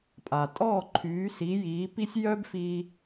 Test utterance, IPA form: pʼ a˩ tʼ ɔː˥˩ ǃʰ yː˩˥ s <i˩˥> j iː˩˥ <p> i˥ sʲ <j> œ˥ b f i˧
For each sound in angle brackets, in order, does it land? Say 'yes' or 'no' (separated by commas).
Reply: yes, yes, yes